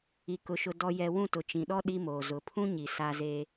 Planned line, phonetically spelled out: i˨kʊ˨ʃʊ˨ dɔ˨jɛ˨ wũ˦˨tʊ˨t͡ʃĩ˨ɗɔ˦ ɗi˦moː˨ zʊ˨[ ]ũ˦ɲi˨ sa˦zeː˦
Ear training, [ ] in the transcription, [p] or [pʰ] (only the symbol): pʰ